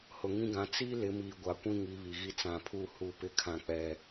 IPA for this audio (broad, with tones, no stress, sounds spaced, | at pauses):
h ʊ˨ ŋ ĩ˦ ɡ ã˨˦ t͡s i˦ l ɪ˨˦ m iː˨ ɡʷ a˨ kʷ ĩ˦ ŋ i˨˦ β i˨ ɣ i˦ t͡s ã˨ pʰ u˦˨ h u˦˨ p ɪ˦ kʰ ã˨ k͡p ɛ˨